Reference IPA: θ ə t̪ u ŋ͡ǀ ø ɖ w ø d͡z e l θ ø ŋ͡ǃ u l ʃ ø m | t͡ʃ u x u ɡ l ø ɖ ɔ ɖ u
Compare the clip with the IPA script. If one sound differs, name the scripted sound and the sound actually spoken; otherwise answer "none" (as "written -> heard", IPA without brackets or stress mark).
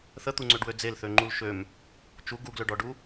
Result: x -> ɡ